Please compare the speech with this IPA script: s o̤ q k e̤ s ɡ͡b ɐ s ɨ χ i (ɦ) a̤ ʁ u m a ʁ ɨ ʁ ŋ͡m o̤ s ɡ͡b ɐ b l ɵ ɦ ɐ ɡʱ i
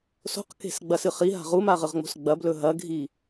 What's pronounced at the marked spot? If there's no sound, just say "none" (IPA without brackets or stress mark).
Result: ɦ